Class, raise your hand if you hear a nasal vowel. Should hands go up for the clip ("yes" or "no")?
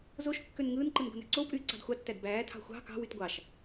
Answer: no